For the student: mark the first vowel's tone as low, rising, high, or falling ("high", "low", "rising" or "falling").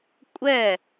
falling